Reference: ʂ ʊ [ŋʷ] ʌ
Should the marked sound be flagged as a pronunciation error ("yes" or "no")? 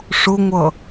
no